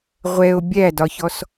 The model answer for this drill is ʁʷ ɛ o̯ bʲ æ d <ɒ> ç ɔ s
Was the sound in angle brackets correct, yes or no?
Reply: yes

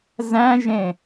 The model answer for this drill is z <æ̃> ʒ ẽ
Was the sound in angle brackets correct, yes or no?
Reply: yes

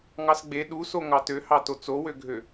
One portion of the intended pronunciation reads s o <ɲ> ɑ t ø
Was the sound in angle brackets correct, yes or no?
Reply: no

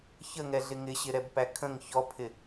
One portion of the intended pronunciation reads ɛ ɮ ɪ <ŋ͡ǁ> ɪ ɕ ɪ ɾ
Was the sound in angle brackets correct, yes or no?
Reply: no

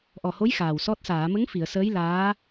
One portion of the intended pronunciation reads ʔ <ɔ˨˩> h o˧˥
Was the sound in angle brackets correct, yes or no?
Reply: yes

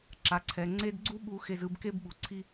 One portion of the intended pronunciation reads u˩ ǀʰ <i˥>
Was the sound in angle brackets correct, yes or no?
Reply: yes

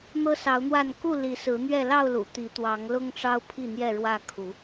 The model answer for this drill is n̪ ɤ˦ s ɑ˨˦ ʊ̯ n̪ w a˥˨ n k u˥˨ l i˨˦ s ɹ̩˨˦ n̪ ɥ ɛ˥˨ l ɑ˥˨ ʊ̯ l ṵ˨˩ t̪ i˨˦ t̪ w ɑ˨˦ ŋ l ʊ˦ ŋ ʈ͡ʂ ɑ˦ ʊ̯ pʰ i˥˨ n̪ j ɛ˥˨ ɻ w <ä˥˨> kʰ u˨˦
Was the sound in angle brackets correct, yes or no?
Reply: yes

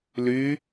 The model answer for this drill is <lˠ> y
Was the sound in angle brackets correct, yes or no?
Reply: no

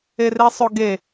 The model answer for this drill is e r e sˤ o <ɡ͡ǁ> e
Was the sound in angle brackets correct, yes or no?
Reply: no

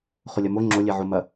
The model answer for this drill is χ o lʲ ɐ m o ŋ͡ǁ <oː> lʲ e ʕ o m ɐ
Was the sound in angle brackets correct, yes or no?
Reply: no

